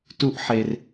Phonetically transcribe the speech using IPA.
t u ʔ ħ e r

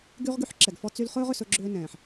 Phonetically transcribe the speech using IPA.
ɡ y˦ ʁ ɡ y˦ ħ ǁ ɛ˨ ɡ f ɔ˦ t͡s y˦ l χ ɵː˦ ʁ ʏ˨ s ɵ˦ ɡ͡ǁ ʏː˦ n ɛ̃ː˨ ħ

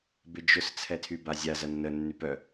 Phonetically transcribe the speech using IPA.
b ɪ d͡ʒ ʊ s t͡sʰ ɛ tʰ y b a zʲ a z ɐ nː ə nː y p œ

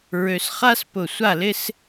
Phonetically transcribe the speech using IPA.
ɹ ø˧ s χ a˥ s p ʊ˧˩ sʷ a˥˧ l ɪ˥ s

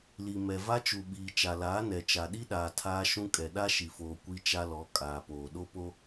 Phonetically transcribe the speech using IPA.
l i˨ m ɛ˨ v a˦ t͡ʃ u˨ ɓ iː˨ t͡ʃ a˨ l aː˨˦ n ɛ˨ t͡ʃ a˨ ɗ i˦ ɗ aː˨ tʰ aː˦ ʃ ũ˦ kʼ ɛ˨ ɗ a˦ ʃ i˨ f oː˨ kʷ i˦ t͡ʃ a˦ l ɔ˨˦ kʼ aː˨ p oː˨ ɗ o˦ p o˦

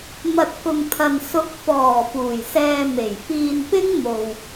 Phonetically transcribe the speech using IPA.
m ɐ˨ t̚ k ʊ˨ ŋ t̪ʰ ɐ˨ n s ʊ˨˥ k̚ f ɔː˨˩ f uː˨˩ j s ɛː˧ m e˨˩ j f iː˧ n p ɪ˥ ŋ m o˨ w

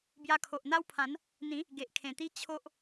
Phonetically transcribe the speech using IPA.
b j a˧ kʰ o˨ ʔ n̪ a˦ w pʰ ã˨˦ n | n̪ ĩ˨˦ | ɡ e˨ ʔ kʰ ẽ˨˩ t̪ i˦ t͡ɕʰ o˦ ʔ

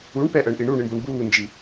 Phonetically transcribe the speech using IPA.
u ɳ p ɛ ʔ əː ɳ ʔ i ɳ u ɳ i ɳ b o ɳ b uː n d͡ʒ i

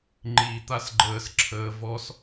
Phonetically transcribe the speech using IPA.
ŋ͡ǃ i t̪ a s ɡ͡ǃ əː s ǁʰ əː v ɔ s

